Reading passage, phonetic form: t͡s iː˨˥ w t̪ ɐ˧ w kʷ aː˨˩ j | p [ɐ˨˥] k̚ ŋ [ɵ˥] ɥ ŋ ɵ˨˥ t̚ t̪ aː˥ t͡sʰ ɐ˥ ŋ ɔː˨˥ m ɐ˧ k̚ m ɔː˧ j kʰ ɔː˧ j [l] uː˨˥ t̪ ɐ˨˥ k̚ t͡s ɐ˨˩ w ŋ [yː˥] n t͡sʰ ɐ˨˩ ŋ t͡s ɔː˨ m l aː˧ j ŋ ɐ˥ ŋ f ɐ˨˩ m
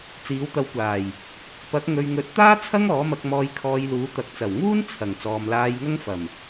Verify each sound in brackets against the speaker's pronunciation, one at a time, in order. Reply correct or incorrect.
correct, incorrect: ɵ˧, correct, incorrect: uː˥

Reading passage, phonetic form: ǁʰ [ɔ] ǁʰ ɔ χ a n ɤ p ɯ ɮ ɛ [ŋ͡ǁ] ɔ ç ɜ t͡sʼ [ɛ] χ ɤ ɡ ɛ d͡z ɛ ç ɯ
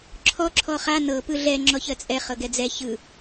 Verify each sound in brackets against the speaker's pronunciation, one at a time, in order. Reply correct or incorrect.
correct, correct, correct

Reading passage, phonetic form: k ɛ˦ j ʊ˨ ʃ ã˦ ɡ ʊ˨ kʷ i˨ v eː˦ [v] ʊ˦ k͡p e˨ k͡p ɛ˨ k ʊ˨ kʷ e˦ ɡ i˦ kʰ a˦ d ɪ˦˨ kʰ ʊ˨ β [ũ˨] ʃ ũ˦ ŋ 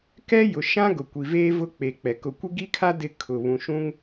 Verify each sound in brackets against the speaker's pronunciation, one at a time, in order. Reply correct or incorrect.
correct, correct

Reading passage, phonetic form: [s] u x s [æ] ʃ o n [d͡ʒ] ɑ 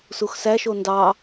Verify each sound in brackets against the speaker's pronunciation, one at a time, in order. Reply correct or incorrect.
correct, correct, incorrect: d

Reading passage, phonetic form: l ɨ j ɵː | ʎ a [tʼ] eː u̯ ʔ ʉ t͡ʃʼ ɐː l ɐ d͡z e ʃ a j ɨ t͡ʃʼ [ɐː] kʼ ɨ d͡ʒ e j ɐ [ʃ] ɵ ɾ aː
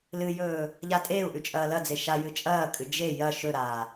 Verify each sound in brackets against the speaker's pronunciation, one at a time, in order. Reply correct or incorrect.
correct, correct, correct

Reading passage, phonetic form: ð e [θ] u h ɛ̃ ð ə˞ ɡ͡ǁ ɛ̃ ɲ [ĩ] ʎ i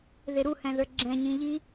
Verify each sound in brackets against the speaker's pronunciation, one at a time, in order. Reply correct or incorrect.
incorrect: ɾ, correct

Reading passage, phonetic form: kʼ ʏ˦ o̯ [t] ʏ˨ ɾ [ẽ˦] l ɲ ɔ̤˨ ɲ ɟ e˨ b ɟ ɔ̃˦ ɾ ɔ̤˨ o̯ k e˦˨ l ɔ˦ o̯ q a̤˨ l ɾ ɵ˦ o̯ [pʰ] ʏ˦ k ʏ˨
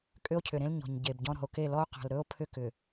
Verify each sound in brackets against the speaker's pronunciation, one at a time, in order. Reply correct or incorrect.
incorrect: cʰ, correct, correct

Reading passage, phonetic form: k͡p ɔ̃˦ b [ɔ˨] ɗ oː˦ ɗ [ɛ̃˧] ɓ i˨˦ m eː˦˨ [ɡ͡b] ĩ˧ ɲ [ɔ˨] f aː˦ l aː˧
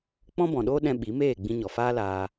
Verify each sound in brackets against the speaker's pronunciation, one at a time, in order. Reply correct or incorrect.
incorrect: ɔ̃˨, correct, correct, correct

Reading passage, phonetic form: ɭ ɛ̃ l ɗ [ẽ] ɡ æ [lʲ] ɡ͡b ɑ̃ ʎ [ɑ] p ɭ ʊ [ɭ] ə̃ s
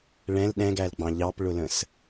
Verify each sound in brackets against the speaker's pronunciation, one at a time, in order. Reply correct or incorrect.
incorrect: ɛ̃, incorrect: l, correct, incorrect: l

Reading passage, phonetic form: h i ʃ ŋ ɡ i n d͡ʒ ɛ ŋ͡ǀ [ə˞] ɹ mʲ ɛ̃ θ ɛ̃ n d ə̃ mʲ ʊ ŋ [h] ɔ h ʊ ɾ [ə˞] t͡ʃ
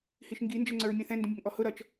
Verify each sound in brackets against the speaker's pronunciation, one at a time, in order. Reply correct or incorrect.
correct, incorrect: ʔ, incorrect: ʌ

